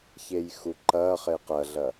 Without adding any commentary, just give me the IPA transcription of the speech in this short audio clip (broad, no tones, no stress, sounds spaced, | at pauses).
ç e j x u ǃ ɐː χ e q ɐ ɮ ɐ